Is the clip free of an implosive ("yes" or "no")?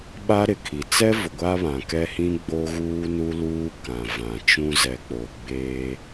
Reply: no